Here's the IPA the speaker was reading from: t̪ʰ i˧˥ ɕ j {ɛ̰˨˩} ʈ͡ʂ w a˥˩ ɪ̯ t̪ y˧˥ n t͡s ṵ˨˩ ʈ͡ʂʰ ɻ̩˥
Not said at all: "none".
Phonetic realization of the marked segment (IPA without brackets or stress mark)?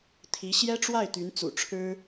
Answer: ɛ˥